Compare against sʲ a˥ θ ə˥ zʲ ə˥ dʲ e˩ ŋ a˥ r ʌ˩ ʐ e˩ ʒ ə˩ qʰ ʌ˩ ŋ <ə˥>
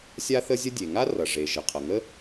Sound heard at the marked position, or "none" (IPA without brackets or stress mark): ə˥